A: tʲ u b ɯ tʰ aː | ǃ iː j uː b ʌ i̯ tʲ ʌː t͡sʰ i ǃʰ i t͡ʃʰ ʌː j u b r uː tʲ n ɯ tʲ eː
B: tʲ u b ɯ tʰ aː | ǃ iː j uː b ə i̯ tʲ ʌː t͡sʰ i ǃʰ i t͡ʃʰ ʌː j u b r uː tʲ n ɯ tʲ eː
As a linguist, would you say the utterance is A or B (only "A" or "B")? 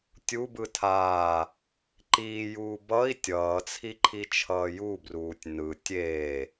A